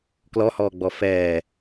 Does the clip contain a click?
no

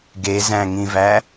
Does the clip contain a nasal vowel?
yes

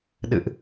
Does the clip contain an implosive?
yes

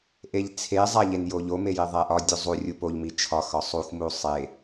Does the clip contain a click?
no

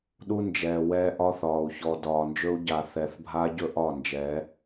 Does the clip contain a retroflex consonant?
no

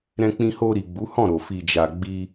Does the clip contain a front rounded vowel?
no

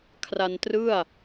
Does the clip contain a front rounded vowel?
no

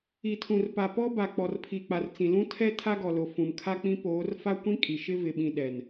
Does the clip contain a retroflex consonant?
no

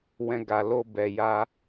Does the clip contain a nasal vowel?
yes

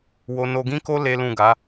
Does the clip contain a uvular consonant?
no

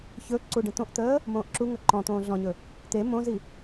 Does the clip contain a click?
yes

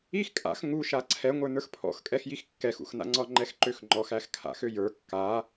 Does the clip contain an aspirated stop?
yes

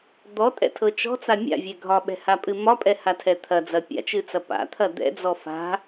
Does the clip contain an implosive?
yes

